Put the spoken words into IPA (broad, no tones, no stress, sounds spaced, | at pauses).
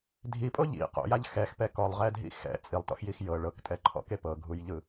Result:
dʱ i pʼ o ʎ ḭ q o̰ j a ʎ x ɛ x p ɛ k ɔ lˠ ʁ ɛ dʱ ḭ x ɛ̰ t͡sʼ i lˠ t ɔ̰ x j i x j ɤ ɭ ɤ k tʼ ɛ ǃʰ ɔ̰ k e p ɤ ɡʱ u j ʎ ɯ